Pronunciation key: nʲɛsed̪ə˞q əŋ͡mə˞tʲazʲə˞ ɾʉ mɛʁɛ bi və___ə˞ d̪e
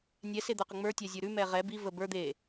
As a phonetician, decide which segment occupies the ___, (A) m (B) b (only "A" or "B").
B